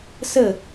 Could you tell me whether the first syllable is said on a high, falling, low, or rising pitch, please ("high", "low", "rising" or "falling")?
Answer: falling